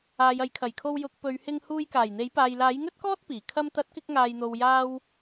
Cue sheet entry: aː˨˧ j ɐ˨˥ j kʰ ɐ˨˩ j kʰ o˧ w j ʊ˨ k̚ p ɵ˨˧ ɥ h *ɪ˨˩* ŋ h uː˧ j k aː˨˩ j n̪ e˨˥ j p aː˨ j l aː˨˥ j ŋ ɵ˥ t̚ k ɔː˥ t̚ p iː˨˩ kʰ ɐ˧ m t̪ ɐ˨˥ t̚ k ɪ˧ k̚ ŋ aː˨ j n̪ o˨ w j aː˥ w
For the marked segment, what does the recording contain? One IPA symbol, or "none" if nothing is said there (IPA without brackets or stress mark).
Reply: ɪ˧